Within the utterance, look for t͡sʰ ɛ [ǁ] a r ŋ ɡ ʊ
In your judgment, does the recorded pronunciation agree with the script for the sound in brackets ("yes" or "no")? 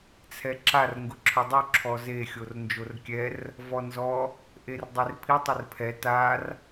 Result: yes